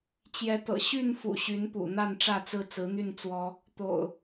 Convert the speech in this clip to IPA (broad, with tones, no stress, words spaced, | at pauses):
t͡ɕjɛ˨˦t̪ɤ̰˨˩ ɕy˥˨nfṵ˨˩ ɕy˨˦npṵ˨˩ n̪a˥˨nʈ͡ʂä˥˨t͡sɹ̩˥˨ t͡sɹ̩˨˦n̪y˥˨n t͡swɔ˦ | t̪o̰˨˩ʊ̯